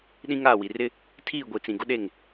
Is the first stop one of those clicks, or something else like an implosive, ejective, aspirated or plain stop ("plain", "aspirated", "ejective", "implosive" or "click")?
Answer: implosive